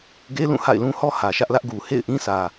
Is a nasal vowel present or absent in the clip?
present